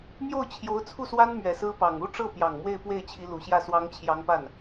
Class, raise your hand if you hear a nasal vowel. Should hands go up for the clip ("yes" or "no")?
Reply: no